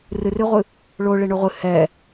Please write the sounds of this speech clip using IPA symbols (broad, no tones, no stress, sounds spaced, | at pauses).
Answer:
r ɨ r ɨ ʁʷ ɨ | ɭ o ɭ e ɳ o ʁʷ ɨ h ɛ